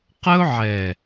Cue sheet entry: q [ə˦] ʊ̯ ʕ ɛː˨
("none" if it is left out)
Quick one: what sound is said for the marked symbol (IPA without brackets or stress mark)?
ə˦